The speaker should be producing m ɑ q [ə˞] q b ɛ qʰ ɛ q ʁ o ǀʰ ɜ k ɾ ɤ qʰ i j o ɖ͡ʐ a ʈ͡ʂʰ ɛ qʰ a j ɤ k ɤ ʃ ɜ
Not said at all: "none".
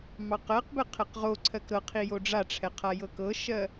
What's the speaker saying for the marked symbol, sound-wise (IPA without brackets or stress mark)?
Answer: ɜ